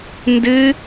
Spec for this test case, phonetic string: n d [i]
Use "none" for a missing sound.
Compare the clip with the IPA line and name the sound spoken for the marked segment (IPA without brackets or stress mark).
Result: ɨ